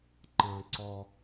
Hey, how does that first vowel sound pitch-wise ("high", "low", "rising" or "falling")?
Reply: low